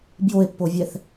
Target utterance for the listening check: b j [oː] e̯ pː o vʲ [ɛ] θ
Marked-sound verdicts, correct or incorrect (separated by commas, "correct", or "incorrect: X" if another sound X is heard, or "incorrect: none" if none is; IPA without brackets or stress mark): incorrect: o, correct